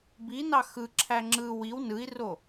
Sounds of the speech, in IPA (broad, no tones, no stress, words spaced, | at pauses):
binɑ xɯǁʰæ ŋ͡ǁɯ wiw nɯi̯ro